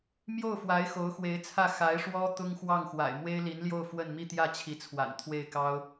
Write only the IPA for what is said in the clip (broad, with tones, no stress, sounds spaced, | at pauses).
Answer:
m j o˥˩ ʊ̯ f w a˧˥ ɪ̯ x o˧˥ ʊ̯ x w e˧˥ ɪ̯ t͡sʰ ä˥˩ x a˧˥ ɪ̯ ʂ w ɔ˥ t̪ ʊ˥ ŋ x w ɑ˥˩ ŋ x w a̰˨˩ ɪ̯ m w e˥ ɪ̯ l i˧˥ n l j o˥˧ ʊ̯ f w ə˥˧ n m i˥˧ t̪ j ä˥˩ t͡ɕʰ i˧˥ t͡sʰ w a̰˨˩ n t̪ʰ w e˥˩ ɪ̯ k ɑ˥ ʊ̯